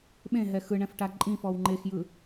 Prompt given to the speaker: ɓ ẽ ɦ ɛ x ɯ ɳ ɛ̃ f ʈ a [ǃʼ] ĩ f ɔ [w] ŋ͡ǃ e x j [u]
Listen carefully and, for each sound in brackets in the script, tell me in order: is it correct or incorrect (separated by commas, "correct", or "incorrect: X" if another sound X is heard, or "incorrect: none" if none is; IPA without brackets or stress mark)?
correct, correct, incorrect: ɯ